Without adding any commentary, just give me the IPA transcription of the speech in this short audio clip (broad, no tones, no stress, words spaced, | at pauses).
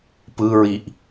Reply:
pɯɹiʔ